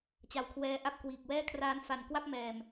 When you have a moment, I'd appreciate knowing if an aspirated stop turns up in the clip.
yes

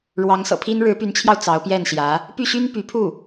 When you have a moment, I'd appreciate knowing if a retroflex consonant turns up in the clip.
yes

